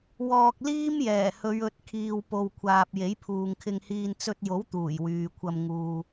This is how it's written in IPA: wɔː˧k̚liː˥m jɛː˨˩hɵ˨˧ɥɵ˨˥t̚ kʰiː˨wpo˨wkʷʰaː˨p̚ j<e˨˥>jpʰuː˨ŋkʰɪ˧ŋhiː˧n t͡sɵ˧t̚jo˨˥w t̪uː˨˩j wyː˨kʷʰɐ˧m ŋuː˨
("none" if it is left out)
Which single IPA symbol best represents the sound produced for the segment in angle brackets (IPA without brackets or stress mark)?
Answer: e˨˥